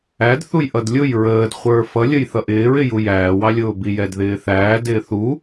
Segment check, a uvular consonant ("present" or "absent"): present